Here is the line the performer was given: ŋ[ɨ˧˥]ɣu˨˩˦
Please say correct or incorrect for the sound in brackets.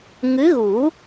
correct